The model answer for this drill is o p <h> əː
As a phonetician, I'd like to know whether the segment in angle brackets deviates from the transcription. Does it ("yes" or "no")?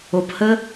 no